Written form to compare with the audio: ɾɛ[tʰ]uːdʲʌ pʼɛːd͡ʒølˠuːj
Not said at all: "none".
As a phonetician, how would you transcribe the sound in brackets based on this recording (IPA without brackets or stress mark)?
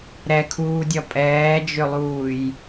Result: kʰ